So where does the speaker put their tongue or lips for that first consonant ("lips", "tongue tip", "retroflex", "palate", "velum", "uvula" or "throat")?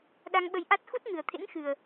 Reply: tongue tip